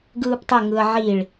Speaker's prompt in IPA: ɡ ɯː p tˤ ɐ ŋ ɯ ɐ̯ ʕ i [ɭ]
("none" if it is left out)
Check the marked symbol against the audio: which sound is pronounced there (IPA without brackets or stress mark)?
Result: ɭ